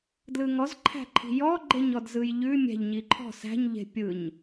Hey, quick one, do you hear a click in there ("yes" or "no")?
yes